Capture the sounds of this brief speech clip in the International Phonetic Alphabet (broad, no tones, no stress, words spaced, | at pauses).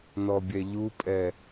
nɔbʲɛʎupʼɛ